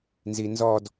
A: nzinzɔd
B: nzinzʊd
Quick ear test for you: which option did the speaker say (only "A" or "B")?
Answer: A